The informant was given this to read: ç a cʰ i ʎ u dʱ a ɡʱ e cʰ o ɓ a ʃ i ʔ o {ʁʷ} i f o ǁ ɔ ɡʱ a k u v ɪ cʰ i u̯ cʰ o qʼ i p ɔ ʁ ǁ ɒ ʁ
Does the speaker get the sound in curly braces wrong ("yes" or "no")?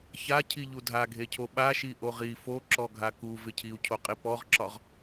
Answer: yes